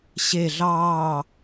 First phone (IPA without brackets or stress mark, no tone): ɕ